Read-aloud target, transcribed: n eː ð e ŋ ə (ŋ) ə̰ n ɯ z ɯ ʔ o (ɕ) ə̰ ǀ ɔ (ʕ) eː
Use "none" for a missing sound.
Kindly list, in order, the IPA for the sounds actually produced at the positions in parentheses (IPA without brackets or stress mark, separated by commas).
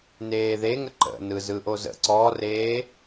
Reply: ǃ, z, r